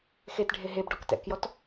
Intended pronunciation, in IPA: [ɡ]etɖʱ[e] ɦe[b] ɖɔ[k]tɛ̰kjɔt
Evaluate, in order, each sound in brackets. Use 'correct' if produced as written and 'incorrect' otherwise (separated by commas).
incorrect, correct, correct, correct